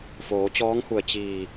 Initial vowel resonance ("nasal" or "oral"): oral